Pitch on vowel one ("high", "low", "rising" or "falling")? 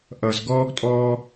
low